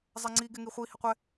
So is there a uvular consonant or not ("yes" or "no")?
yes